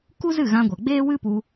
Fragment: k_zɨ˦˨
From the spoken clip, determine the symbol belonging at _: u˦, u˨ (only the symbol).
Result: u˦